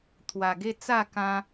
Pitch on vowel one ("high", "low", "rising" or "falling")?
low